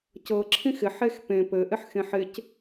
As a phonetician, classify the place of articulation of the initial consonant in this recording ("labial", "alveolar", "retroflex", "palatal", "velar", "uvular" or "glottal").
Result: palatal